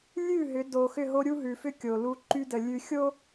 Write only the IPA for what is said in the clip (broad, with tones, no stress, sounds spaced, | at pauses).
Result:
lʲ ʉ˦˨ ɦ ʏ˨˦ d o˨ x ʏ˦˨ ɦ o˦ ɾʲ u˦ ɦ ʉ˨ f ʏ˦ kʲ o˨ l u˦ ǃ y˦ d ə˨ lʲ ʉ˨ xʲ o˦